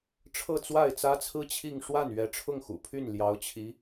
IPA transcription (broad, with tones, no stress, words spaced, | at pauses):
ʈ͡ʂʰɤ˥˧t͡swa˥˩ɪ̯t͡sä˥t͡sʰɹ̩˥ t͡ɕʰi˥˧ŋ ʂwa˥˩n ɥɛ˧˥ʈ͡ʂʰʊ˥˩ŋxṵ˨˩pʰy˥˩n ljɑ˧˥ʊ̯t͡ɕʰi˧˥